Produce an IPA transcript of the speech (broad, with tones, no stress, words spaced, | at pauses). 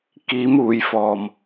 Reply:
kiː˨˥muː˨˩jfɔː˨˩m